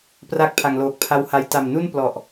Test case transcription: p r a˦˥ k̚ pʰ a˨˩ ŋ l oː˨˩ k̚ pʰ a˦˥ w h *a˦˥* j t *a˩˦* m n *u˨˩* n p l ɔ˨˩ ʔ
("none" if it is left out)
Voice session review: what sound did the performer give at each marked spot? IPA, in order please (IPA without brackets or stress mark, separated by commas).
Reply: a˦˥, a˨˩, u˥˩